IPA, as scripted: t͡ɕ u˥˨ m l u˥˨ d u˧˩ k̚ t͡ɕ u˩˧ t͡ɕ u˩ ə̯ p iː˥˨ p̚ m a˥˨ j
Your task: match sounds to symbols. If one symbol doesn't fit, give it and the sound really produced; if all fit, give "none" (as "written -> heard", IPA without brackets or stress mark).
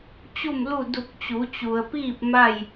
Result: none